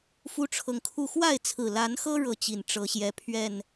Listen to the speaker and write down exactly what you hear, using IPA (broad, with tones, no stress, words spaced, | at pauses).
fu˦ʈ͡ʂʰɤ˨ŋkʰu˥˨ xwa˥˨ɪ̯t͡sʰɹ̩˨˩la˨˦nxɤ˦ ɻɤ˥˨t͡ɕi˨˩n ʈ͡ʂɤ˨˦ɕjɛ˨˦ pʰɥɛ˥˨n